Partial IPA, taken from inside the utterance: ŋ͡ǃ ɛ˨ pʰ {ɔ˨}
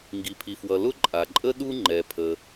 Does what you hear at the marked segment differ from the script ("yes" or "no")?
yes